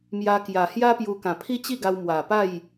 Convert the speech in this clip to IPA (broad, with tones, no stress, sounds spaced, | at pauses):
m j a˧ k j a˨˩ h j a˦ p j u˧ k ã˨˩ pʰ i˦ t͡ɕ i˥˧ ɡ a˧ w m w a˨˩ p a˥˧ j